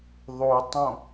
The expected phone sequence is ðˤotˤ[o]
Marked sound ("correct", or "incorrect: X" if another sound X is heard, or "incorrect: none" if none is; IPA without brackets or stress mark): incorrect: õ